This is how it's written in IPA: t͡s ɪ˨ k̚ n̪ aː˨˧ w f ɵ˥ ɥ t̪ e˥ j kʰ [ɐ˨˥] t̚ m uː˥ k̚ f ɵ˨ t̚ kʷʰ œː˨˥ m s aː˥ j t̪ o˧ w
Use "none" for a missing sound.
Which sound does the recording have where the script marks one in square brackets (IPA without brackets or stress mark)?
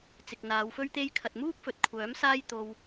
ɐ˨